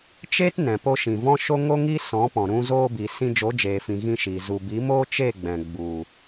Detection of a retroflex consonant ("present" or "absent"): absent